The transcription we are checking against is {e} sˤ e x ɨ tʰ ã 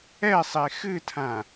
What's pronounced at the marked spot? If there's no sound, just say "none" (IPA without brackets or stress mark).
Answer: ɛ